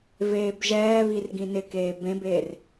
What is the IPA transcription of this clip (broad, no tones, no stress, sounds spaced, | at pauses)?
v eː b ʒ ɛː β i r ɡ ĩ n ɪ k eː b ẽ b eː r